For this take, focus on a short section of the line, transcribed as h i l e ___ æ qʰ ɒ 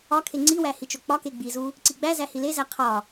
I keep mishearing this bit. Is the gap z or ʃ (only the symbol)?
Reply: z